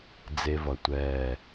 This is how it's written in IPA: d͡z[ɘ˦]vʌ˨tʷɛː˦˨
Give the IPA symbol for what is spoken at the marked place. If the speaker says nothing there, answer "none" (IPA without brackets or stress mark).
e˦